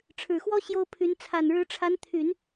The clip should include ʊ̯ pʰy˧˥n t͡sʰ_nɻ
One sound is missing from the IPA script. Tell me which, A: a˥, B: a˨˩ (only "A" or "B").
B